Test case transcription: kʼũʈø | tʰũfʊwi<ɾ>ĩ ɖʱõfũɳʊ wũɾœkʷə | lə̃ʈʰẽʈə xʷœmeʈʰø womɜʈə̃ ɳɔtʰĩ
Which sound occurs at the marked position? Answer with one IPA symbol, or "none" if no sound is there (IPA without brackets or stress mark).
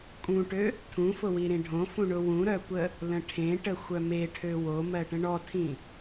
ɾ